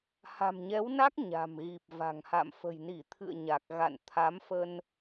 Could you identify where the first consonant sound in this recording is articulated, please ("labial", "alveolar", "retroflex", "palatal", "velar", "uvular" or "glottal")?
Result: glottal